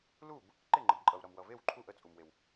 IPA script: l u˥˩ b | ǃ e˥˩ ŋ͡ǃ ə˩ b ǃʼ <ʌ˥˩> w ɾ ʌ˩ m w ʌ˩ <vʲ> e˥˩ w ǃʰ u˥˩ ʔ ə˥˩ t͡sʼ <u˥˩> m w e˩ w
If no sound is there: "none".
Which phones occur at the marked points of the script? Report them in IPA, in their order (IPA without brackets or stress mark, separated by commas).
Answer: ʌ˩, v, u˩